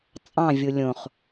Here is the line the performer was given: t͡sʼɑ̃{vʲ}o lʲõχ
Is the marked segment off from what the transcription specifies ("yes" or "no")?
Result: no